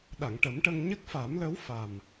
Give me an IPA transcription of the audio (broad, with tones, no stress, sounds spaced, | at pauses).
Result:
ɗ a˨˩˨ ŋ ʈ ə˨˩˦ m ʈ ə˧ ŋ ɲ ə˦˥ k̚ f a˨˩˦ m l ə˧˥ w f a˨˩ m